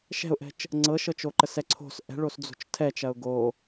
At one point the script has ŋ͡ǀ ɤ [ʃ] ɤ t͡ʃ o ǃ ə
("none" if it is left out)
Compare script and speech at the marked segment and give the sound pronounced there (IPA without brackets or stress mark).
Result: ʃ